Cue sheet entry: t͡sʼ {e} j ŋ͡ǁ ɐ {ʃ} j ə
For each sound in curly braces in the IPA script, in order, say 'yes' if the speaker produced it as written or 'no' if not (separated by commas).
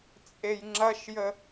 yes, yes